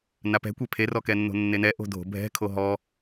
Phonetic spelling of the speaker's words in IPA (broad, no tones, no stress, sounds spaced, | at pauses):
n a p ɛ̤ kʷ ɛ pʰ e r ɔ k ɛ nː o̤ nː e n ɛ ʔ o̤ dʱ o̤ bʱ ɛ̤ kʰ o ɦ ɔ